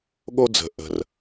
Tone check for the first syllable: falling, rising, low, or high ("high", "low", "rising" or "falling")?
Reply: high